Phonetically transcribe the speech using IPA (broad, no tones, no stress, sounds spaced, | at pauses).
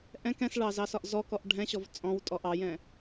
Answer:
ʔ ɛ̃ k ɛ̃ s ɭ ɑ z ɑ s ɒ ʔ z ɔ k ɔ ʔ ɖʱ ɛ̃ ɕ ɔ v t͡sʼ ɔ̃ w tʼ ɔ ʔ ɑ j ɛ̃